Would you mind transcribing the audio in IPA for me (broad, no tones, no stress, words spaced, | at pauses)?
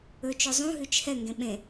ɵt͡ʃɵ zˤũɦʉt͡ʃ hɛŋɡẽ ɓẽ